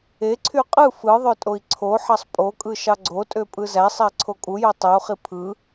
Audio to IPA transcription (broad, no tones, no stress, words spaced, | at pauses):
eǀʰy qʼɯ fɯ ðˤøtʼoi̯ǀʰoħɑsˤ pʼokʼɯ ʃɑɡ͡ǀotʼø pʼɯzæsˤæ ǀʰokʼujo tˤɯu̯χi pʰɯ